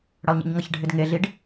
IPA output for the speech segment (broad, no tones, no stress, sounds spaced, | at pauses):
ɽ ʌ lˠ ɲ ḭ ɲ ŋ ʌ ç ɖʱ ɪ d ŋ e ɮ i ɖ